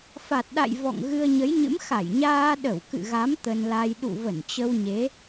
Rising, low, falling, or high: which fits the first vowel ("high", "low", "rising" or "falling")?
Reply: low